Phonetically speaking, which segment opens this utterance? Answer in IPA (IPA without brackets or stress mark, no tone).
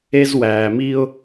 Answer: e